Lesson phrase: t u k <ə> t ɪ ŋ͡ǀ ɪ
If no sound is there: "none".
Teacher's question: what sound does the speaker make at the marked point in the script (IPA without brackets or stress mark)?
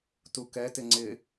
ɛ